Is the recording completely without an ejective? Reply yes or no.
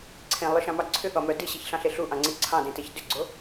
yes